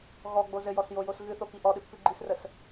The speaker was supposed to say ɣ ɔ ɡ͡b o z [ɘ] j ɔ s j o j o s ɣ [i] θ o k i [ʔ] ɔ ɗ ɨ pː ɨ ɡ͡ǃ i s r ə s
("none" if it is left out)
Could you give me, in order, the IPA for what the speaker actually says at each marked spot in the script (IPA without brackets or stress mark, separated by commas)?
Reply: ɘ, ɨ, ʔ